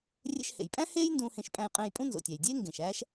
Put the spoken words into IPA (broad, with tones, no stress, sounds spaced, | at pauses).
rʲ ḛ˧ ʃ h ḛ˩ j pʼ æ̃˥ h eː˥ j n d ũː˧ h ẽ˧ ʃ pʼ æ̃˧ j qʼ ẽː˧ j pʼ ũ˥ n z o̰˩ tʲ æ˩ j dʲ eː˥ ŋ ɡ ẽ˩ ʃ æː˥ ʃ